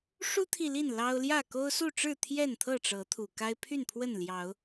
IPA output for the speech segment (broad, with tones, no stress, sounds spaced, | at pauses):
ʂ u˦ t̪ʰ i˨ l i˥˨ n l ɑ˦ ʊ̯ l j ä˥˨ k o˦ ʊ̯ s u˥˨ ʈ͡ʂ ɻ̩˥˨ t̪ʰ j ɛ˥˨ n t̪ʰ ɤ˥˨ ʈ͡ʂ ɤ˨˦ t̪ʰ u˨˩ k a˦ ɪ̯ pʰ y˥˨ n pʰ w ə˥˨ n l j ɑ˨˦ ʊ̯